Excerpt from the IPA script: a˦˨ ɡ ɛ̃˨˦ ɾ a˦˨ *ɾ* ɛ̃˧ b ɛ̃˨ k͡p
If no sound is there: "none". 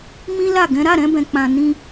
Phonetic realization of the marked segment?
ɾ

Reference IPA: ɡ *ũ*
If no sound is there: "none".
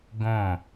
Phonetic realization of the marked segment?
õ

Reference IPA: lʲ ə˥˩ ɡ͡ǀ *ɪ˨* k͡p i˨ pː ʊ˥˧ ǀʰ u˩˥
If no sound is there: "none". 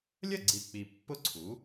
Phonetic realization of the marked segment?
i˨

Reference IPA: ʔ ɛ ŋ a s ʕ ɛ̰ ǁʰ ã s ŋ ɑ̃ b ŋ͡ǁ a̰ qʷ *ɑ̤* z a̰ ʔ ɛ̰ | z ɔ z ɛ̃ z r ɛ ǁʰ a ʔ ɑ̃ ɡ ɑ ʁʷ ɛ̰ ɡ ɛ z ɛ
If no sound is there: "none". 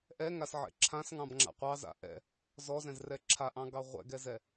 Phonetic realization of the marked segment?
ɑ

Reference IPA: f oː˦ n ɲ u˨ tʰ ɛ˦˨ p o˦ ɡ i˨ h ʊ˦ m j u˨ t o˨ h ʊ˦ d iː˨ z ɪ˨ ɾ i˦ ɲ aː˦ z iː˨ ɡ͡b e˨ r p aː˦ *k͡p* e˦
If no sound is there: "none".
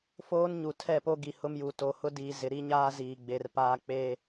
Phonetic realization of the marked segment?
k͡p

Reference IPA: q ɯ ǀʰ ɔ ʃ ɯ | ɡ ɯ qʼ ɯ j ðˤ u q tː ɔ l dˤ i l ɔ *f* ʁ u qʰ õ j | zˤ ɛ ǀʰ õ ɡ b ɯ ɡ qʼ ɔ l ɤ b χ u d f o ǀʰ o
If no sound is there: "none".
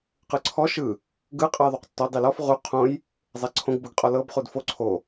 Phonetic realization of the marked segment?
f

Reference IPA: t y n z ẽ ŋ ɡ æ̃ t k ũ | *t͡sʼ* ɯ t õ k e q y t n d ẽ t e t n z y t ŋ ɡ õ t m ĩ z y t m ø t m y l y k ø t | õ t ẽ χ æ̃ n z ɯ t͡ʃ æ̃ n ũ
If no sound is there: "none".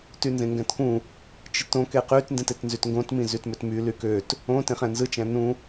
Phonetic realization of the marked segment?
t͡ʃ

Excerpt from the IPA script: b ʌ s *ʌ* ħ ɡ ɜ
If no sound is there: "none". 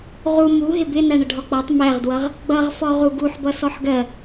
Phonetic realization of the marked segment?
ɔ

